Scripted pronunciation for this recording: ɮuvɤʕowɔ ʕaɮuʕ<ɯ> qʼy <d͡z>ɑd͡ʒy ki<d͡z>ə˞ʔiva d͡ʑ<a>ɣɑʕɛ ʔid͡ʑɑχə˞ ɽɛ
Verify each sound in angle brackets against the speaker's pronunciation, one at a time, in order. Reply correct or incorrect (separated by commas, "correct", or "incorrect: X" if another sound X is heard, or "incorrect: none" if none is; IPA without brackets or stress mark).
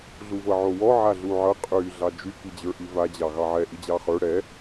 incorrect: ɤ, incorrect: ɮ, incorrect: d͡ʑ, incorrect: ɑ